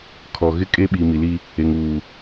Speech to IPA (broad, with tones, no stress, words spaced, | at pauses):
kʰɔ˨ɣɪ˦ kʼeː˦ɓiː˨ mi˨li˦ | e˨ŋuː˨